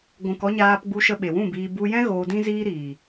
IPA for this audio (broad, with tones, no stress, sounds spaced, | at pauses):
ɡʷ ũ˨ k ɔ˧ ɲ aː˧ p ɡ͡b u˧ ʃ ə˧ ɓ e˨ w ũ˦˨ b iː˧ b u˧ j ɛ̃˦ ɣ oː˧ d ĩ˦ z iː˦ ɾ iː˨